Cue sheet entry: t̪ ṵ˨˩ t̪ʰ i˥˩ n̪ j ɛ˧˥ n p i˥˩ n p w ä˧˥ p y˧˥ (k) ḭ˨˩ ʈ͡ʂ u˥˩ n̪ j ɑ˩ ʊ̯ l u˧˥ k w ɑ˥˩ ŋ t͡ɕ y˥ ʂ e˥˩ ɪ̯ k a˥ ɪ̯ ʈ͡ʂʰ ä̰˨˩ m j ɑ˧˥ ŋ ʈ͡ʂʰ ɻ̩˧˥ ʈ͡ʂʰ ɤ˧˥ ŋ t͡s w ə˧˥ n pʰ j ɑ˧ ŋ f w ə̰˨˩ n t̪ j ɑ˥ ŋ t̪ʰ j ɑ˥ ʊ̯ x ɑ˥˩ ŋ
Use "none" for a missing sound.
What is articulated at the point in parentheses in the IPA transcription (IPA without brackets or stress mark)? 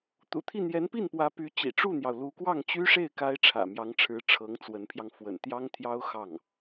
t͡ɕ